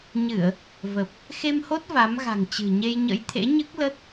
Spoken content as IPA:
ɲ ɨ˧˩˨ ə̯ | v ə˨˩ p̚ | x e˧ m h o˦˥ t̚ v a˨˦ m ɣ a̤˨˩ ŋ t͡ɕ ɨ̤˨˩ ɲ e˧ j ɲ ə̰˧˥ j t̪ʰ ḛ˧˥ ɲ ɨ˦˥ k̚ l ə˦˥ t̚

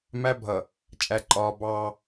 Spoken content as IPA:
m æ˦ bʱ ʌ˨ | t͡ʃʼ æ˨ ǃʼ ɒː˨ b ɑː˦

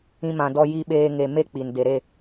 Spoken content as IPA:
ĩ˧ m ã˨ d ɔ˧ j i˧ ɓ eː˧ ŋ e˨ m e˦ k͡p i˨ n d e˨ ɾ e˦˨

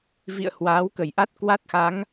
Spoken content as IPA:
v ḭ˧˨ ə̯ h w aː˨˦ w k ə˧˩ j ʔ a˦˥ t̚ k w a˦˥ t̚ x a˨˦ ŋ

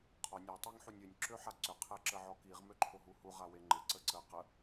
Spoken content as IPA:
qʰ ɔ nʲ a tˤ e ŋ ħ u nʲ ø nʲ ǁ ø ħ a ǀ ʏ qʰ ɛ ǁ ə ʕ ɔ k i ʁ m ø ǃʰ o ɦ u h u ʁ a w e ŋ͡ǃ ɪ ǀ ə ǀ ə q ə

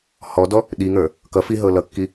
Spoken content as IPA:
h ɔ d ɔ | ɗ i ŋ ə˞ | k ʌ f i ɦ ɤ l ʌ kː i

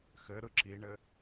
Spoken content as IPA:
x ɘ ɾ ɯ ǁ i ɳ ɘ

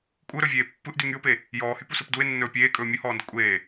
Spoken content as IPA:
kʷʼ ɯ ɾ ɵ vʲ eː pː ɯ ʔ d y ŋ y ʊ̯ p e | j ɔː h y p u s ɯ p d u ɪ̯ nː ɵː pʲ eː kʼ ɵː mʲ ɯ h ɔː n d ə kʷʼ eː

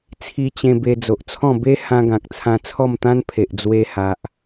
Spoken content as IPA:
t͡sʰ i˧ t͡ɕ ẽ˧ b e˧ d͡z o˨ ʔ t͡sʰ ɔ̃˥˧ b e˦ h ã˧ ɡ ã˨ k̚ t͡sʰ ã˧ t͡sʰ ɔ˥˧ m t̪ ã˦ n pʰ e˨ ʔ d͡z w e˧ h a˨ ʔ

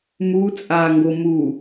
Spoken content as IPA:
m u t͡sʼ a ŋ ɡ o m u

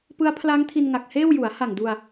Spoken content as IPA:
p ɯ˦˥ a̯ pʰ l a˦˥ ŋ tʰ i˧ n ŋ a˨˩ k̚ h eː˥˩ w j u˩˦ a̯ h a˨˩ ŋ d u˧ a̯

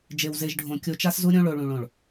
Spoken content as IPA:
d͡ʒ e˨ w z e˨ ʒ ɖʱ õ˨ kʲ o˨ t͡ʃ a˦ s z u˦ ɾʲ õ˦ ɭ o˨ ɭ ũ˨ ɭ õ˨ ɭ

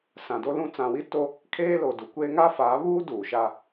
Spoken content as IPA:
s ã˨ d o˦ l ũ˦ t͡s ã˨ w i˦ t o˦ | kʰ eː˦ l o˨ d u˨ kʷ eː˦ ŋ a˦ f aː˨˦ β uː˦ d uː˨ ʃ a˦

